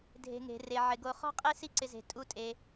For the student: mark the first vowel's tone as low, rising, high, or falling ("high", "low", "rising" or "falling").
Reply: low